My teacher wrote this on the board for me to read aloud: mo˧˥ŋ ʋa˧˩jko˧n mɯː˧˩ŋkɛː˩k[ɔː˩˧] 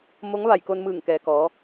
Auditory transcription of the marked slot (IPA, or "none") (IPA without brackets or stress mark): ɔː˩˧